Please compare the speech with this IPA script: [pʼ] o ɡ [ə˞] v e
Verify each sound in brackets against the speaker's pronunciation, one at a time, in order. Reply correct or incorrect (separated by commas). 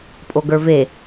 correct, correct